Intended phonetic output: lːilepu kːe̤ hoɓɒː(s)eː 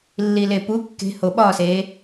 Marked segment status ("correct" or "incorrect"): correct